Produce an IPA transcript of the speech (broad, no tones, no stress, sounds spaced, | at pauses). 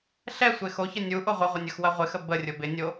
ɬ ɛ sʷ e x o ç ə nʲ u ʔ o ʁʷ ə ʁʷ ə nʲ ɐ x w ɐ ʁʷ ɪ x ə b ə rʲ ʊ b ɪ nʲ o